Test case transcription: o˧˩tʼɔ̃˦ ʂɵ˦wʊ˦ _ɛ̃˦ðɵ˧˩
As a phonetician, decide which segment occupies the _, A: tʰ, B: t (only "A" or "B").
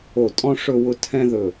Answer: A